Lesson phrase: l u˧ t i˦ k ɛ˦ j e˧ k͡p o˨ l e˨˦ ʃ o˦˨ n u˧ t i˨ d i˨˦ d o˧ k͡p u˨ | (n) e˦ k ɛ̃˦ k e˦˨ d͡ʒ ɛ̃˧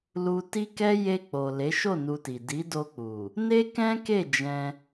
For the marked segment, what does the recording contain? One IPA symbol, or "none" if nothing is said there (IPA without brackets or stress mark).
n